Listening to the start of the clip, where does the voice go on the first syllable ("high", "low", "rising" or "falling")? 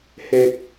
low